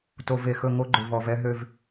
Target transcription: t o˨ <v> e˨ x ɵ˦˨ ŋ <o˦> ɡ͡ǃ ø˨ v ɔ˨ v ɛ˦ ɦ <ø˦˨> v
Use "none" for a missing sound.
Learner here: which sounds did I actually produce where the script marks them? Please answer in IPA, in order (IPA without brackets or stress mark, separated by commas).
v, o˦, ø˦˨